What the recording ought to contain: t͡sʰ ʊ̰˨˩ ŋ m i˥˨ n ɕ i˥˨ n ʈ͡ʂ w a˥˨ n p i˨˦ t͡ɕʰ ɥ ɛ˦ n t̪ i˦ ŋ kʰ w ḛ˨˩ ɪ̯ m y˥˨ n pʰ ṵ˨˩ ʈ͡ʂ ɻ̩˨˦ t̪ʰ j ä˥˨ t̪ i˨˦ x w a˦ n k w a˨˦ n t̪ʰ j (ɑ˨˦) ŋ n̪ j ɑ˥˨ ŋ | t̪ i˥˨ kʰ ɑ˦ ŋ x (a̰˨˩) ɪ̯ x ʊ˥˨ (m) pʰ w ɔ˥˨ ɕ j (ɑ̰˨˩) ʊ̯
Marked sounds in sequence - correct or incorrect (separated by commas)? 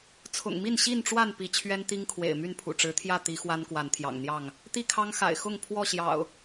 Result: incorrect, correct, incorrect, correct